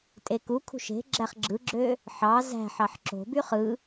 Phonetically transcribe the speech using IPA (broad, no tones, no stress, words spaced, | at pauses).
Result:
tʼekukʰṳʃ e̤ ɡ͡ǁæχɡ͡ǁɯɡ͡ǁø | ħɑ zæ̤ħɑħ ǁo̤by χɯ